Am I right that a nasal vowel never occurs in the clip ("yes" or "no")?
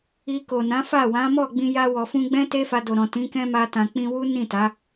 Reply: no